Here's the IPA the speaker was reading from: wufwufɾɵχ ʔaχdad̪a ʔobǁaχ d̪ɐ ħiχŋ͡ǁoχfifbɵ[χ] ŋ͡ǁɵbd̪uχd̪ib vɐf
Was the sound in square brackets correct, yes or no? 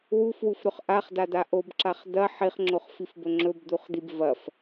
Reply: no